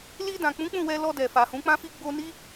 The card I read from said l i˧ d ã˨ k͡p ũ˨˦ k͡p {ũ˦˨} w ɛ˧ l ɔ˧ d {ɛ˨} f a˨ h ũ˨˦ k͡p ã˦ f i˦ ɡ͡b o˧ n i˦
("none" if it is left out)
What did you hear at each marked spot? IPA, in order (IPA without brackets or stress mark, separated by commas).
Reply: ũ˦˨, ɛ˨